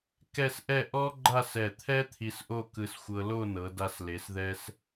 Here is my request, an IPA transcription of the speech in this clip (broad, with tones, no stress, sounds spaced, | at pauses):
k ɛ˥˧ s ʔ ɛ˥˧ ʔ ɔ˥ ɡ͡ǃ a˥˧ s ɛ˧˩ t̪ʰ ɛ˥ t̪ʰ i˧ s ʔ o˥˧ k ɯ˧ s xʷ ɤ˧ l o˥˧ n ɤ˩˧ d a˧ s l e˩˧ s ð ɛ˧ s